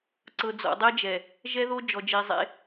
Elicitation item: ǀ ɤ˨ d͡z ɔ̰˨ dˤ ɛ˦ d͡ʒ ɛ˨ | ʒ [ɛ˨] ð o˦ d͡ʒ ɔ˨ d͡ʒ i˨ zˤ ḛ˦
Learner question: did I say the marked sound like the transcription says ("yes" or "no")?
no